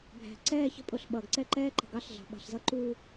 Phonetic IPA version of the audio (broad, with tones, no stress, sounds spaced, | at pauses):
bʱ æ̤˨ ǀ ɛː˦˨ ç ə̤˦ pʼ ʊ˨ ɬ ɓ ʌː˨ ɡ ǀ ɛ˦˨ ǃ ɛː˦ ǃ ə̤˨ ɡ ɑ˦ ɬ ɮ ɑ̤˨ ɓ ɑ̤˨ ɬ z ʌ˦ ǃ u˦